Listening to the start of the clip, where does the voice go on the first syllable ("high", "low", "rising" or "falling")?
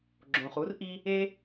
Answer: low